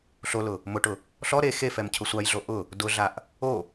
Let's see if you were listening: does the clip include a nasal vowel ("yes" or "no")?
no